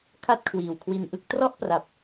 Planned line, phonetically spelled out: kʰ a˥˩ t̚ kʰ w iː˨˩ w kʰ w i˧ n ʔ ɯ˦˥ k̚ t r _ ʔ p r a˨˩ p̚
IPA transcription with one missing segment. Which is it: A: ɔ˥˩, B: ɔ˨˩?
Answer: A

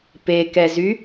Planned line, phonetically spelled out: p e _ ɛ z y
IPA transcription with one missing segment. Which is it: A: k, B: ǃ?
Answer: A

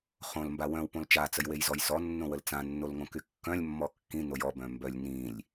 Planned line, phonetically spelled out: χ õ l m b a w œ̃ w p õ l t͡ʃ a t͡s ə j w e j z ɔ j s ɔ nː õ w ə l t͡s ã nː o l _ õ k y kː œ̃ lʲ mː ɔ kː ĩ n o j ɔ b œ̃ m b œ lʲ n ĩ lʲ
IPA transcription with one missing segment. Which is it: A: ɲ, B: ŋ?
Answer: B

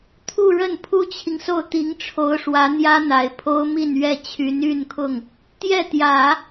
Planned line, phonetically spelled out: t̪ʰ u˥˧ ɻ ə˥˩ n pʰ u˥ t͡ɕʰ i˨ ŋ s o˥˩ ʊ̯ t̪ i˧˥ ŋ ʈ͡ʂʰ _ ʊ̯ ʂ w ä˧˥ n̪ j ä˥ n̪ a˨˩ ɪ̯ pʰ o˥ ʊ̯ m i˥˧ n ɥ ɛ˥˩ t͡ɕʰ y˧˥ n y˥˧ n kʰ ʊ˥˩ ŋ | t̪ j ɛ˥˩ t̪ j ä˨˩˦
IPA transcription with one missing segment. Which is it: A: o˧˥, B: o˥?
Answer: A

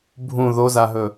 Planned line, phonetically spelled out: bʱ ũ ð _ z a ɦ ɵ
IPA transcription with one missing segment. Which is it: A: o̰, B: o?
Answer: B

